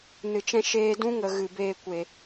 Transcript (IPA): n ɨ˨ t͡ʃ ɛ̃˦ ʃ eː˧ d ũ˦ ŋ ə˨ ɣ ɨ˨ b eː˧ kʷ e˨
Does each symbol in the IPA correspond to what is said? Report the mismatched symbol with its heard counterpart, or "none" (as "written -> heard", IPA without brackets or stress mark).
none